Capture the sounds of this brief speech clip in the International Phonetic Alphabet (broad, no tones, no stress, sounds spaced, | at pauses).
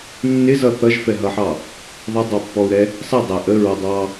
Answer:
nː ɪ z ʌ θ ʌ ʒ f ɛ ɦ ʌ ħ ɑ | ðˤ ɪ dˤ ɑ pː ɔ u̯ ɾ ɛ | sˤ ɪ dˤ æ ʔ ə ɹ ɔ dˤ ɑ